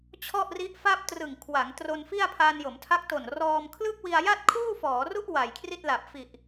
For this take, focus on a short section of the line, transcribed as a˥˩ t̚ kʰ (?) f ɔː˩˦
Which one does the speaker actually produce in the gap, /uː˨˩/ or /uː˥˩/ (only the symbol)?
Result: uː˥˩